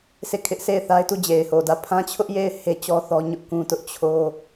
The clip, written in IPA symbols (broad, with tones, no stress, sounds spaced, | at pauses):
s e˦˨ kʰ ɪ˦ ʔ sʰ e˦˨ ɪ̯ θ a˦ ɪ̯ t u˦˨ d͡ʑ e˨ ɪ̯ h o˨ d ä˦˨ pʰ ã˦ t͡ɕʰ ʊ˦ ʔ j e˦˨ ɪ̯ h e˦ t͡ɕ ɔ˦ θ ɔ˦ ɲ ʊ˦ ʔ k ũ˦ t ʊ˦ ʔ t͡ɕʰ o˦